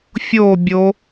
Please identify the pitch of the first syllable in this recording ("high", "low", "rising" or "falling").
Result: falling